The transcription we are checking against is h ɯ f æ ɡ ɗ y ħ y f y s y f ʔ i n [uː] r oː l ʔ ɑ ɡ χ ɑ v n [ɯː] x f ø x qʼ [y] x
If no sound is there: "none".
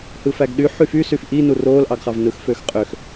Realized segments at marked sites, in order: u, ɯ, ø

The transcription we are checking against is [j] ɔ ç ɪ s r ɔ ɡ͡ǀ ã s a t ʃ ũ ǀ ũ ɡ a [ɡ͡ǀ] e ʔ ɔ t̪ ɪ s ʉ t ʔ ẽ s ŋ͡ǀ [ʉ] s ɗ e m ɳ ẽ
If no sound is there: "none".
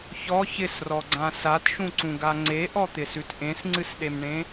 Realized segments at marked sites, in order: ç, ŋ͡ǀ, ɨ

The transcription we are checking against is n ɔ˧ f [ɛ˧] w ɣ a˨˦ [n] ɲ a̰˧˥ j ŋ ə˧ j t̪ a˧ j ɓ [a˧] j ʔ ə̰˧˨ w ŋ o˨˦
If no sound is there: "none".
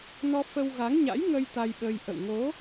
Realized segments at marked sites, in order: ə˧, ŋ, ə˧

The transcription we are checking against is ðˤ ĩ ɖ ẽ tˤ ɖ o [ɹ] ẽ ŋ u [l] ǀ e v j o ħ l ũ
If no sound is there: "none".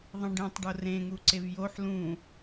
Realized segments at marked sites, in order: r, none

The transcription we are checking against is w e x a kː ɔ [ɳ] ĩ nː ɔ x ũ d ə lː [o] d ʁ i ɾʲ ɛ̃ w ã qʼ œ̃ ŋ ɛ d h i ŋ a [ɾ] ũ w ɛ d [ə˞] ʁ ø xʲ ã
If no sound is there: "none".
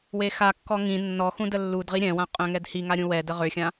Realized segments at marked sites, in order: ŋ, u, ɾʲ, ə

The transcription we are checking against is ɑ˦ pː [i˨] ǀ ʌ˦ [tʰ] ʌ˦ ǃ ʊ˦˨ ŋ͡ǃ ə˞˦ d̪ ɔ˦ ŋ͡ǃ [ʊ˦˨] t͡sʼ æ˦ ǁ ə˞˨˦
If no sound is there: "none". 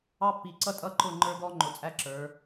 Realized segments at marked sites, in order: i˨, tʼ, ʊ˨

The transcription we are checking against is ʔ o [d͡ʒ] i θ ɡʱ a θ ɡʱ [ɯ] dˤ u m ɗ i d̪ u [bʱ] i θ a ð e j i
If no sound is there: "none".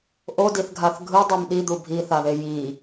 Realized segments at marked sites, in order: d, ɯ, bʱ

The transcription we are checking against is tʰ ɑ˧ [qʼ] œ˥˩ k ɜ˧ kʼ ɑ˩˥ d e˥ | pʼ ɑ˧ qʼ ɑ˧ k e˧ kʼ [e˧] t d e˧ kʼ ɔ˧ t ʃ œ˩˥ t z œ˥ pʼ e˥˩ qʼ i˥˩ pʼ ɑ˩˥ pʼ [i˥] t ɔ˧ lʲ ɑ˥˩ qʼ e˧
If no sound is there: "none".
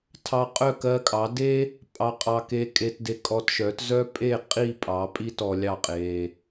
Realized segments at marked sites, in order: qʼ, e˧, i˥

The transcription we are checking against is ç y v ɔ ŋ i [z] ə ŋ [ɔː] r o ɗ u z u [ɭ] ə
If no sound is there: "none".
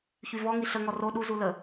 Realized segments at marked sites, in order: ɬ, ɔ, l

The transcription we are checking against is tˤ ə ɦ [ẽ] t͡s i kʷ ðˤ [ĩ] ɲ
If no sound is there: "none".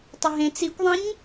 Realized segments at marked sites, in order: ẽ, ĩ

